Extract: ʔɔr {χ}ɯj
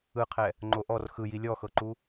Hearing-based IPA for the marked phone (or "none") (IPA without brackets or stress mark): x